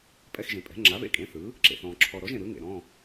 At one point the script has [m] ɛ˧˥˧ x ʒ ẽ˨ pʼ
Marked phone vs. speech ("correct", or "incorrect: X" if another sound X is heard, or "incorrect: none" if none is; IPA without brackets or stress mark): incorrect: pʼ